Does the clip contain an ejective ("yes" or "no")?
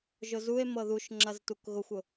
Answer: no